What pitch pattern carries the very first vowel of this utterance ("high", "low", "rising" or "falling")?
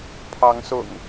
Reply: rising